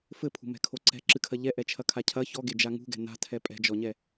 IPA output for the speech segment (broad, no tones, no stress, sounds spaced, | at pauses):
f ɘ pʰ ṳ m ɛ̤ kʰ o ǀ ɛ̤ ǁ ɨ kʰ ɐ ʎ ɛ ʔ ɛ t͡ʃʰ ɐ kʰ a cʰ ɐ ç ɔ ɡ e d͡ʒ a ŋ ṳ ɡ ɛ̤ n a̤ tʰ ɛ pʼ ɛ̤ d͡ʒ ɔ ɲ ɛ